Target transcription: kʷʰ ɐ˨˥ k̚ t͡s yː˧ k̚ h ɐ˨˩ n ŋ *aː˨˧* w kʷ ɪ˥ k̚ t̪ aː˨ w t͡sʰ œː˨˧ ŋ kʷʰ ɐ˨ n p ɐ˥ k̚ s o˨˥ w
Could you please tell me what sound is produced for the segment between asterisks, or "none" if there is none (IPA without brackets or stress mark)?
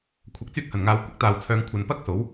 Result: aː˨